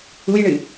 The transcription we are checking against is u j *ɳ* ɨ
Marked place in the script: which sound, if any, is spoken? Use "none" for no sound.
ɳ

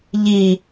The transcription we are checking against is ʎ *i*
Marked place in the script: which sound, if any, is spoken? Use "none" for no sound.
i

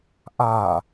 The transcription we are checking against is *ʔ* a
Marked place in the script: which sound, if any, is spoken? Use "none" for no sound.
ʔ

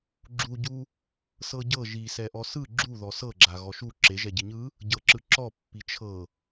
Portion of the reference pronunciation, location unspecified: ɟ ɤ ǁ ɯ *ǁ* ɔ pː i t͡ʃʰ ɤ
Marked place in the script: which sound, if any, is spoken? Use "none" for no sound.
ǁ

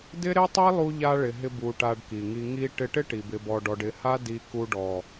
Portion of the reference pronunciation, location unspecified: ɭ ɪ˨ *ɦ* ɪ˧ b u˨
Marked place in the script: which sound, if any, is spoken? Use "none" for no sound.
ɦ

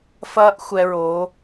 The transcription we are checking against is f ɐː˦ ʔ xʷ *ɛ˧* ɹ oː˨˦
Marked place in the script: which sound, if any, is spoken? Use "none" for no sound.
ɛ˧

